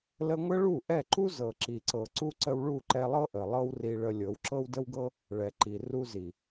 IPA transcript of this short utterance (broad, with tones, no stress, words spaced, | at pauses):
lə˧ŋʷə˦ɭu˦˨ ʔɛ˦˨ǃu˦zɤ˨ ǁi˨ǀɤ˨ ǀu˧ ǀə˧wɭu˦˨ǃɛ˧lˠɤ˦ ʔə˨lˠɤ˦wri˧ ɭə˧ lʲɤ˨˦wǁɤ˦wdə˦wɡɤ˦ | ɭɛ˨ǃi˨ ru˧zi˨